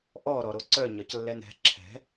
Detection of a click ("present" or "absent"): present